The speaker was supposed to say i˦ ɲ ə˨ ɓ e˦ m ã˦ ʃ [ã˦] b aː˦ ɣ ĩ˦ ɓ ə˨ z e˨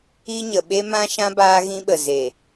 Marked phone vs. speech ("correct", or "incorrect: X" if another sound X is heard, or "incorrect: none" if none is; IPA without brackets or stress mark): correct